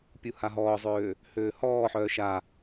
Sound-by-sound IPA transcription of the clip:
pʲ u h a ɦ ɔː zˤ øː | h øː h ɔː ħ œː ʃ a

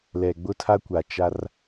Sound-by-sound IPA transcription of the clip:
l ɛ˨ ɡ͡b ʊ˦ tʰ a˦ kʷ a˨ t͡ʃ a˦ r

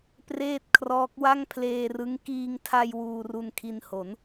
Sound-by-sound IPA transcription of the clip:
p r eː˥˩ t̚ kʰ r ɔː˦˥ k̚ w a˥˩ ŋ pʰ l eː˧ r ɯ˦˥ ŋ k iː˧ ŋ tʰ a˧ j w uː˧ r u˧ n kʰ i˧ n h o˩˦ n

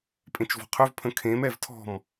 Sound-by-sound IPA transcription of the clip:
pʼ ẽ t͡ʃ v ɔ̤ qʰ ø v pʰ ə̃ kʰ ẽ m ɛ v tʰ ɔ̤ m

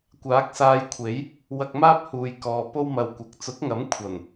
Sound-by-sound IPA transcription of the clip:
kʷ aː˨˥ k̚ s aː˧ j kʷʰ e˨˥ j | w ɐ˧ k̚ m aː˥ p̚ h uː˨ j k ɔː˨ p o˥ w m ɐ˧ w kʷ ɐ˨˥ k̚ t͡s ʊ˨˥ k̚ ŋ ɐ˨˥ m kʷʰ ɐ˨˩ n

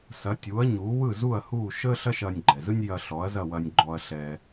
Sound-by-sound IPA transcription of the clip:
s ɐ˩˥ tʲ uː˩˥ ɐ̯ ɲ uː˩˥ w ɯ˥˩ z u˥˩ ɐ̯ h uː˥˩ ʃ əː˥ ɬ ɐ˥ ʃ ɐː˧ nʲ ɡ͡ǃ ɛ˩ z ɯ˥ nʲ j ɐ˧ ɬ ɔ˩˥ ɐ̯ z ɐ˥˩ w ɐ˧ nʲ ɡ͡ǃ ɔ˧ ɐ̯ ɬ ɛ˧

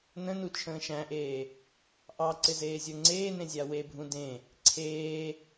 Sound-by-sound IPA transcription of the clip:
n ə̃ n u t͡ʃʰ ə̃ː ʃ æ̃ ʔ eː | ʔ ɑ ǀ ɪ z eː zʲ ə˞ ŋ͡ǀ eː n ẽ zʲ a w e bʱ ũ d ẽ | ǀʰ eː

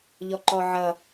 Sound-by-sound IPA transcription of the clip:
ʎ ɔ ǃ ɔ ʕ ʌ

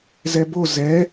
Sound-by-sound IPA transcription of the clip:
z ɛ b o z ɛ

